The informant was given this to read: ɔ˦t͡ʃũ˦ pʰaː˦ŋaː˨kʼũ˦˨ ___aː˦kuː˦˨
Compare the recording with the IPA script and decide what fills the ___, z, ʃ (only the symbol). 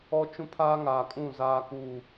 z